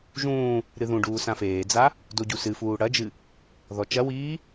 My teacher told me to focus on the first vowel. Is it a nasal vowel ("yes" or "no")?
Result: yes